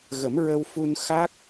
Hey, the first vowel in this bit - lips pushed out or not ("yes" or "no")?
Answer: no